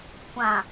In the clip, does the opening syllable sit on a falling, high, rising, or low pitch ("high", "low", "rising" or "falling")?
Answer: low